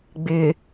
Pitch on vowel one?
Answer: low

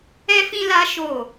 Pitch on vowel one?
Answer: high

